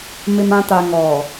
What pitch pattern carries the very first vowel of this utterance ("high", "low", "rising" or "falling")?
low